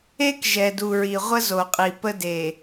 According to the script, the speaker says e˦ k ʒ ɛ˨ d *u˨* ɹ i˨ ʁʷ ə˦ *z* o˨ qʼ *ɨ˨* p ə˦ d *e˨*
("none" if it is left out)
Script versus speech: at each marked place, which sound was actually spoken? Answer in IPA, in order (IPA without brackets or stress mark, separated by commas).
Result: u˨, z, i˨, e˨